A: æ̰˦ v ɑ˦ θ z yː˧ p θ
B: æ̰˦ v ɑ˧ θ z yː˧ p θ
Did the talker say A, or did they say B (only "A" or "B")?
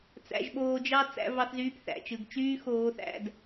B